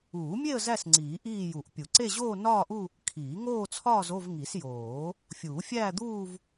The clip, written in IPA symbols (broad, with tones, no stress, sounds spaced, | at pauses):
uː˨˩˦ mʲ e˥˧ ə̯ z æ˥˧ s ŋ͡ǀ iː˨˩˦ ʔ iː˥˧ j u˨˩˦ ʔ pʲ u˨˩˦ ǀ e˥˧ ʑ oː˥˧ n ɒː˥˧ ʔ u˥˧ | kʰ iː˨˩˦ ŋ oː˥˧ t͡sʰ ɒː˥˧ z o˥˧ v ŋ i˨˩˦ s j oː˨˩˦ | fʲ uː˨˩˦ fʲ æː˥˧ d̪ uː˥˧ v